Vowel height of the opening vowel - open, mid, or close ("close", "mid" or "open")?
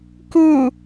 close